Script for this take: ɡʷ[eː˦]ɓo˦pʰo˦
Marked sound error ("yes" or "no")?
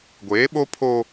yes